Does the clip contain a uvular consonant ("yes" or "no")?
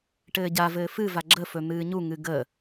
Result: no